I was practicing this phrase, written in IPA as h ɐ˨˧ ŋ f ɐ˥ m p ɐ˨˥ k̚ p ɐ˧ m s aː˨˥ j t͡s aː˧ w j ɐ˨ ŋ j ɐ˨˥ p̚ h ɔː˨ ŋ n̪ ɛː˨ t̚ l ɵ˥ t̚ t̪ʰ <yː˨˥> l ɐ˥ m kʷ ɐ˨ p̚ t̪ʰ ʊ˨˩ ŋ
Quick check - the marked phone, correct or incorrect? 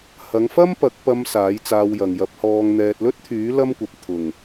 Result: correct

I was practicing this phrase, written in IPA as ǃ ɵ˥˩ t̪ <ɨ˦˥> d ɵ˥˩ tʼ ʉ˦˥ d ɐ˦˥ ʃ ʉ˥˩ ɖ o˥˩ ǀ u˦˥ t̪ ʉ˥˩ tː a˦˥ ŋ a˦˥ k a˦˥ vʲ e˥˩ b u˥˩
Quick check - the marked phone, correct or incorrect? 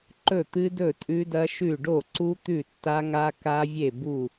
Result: correct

